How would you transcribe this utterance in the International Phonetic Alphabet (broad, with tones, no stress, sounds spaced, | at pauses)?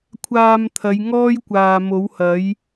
kʷʰ aː˧ m t̪ʰ ɐ˨˧ j ŋ ɔː˥ j kʷ aː˨ m o˨˥ w h ɐ˨˥ j